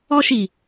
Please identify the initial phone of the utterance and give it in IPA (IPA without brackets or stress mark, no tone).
ɔ